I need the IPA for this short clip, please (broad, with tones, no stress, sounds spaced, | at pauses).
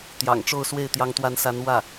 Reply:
t̪ j ɑ̰˨˩ ŋ ʈ͡ʂ o˥˧ ʊ̯ s w e˥˩ ɪ̯ t̪ j ɑ˧˥ ŋ t̪ w a˧˥ n s a˧˥ n w ä˥˩